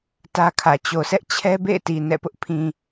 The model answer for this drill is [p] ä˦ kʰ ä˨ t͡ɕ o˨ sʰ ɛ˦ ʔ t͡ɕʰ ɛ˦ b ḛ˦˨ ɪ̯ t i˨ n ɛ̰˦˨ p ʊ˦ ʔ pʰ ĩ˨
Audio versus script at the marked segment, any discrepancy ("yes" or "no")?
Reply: yes